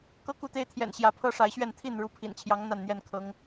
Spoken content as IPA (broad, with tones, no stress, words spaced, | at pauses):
kɤ˦ku˥˨t̪e˦ɪ̯t̪ʰjɛ̰˨˩n ɕjä˨˦pʰɤ˦ʂa˨˦ɪ̯ɕɥɛ˥˨n t̪ʰi˥˨n ɻu˨˦pʰḭ˨˩nt͡ɕʰjɑ˨˦ŋ n̪a˥˨nn̪jɛ˥˨n kʰɤ˨˦ŋ